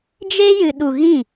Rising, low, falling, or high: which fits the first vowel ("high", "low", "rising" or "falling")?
high